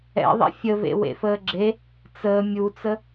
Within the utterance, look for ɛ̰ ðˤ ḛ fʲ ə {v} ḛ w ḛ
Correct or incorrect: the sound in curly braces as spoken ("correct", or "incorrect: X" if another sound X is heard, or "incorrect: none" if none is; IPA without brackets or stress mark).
correct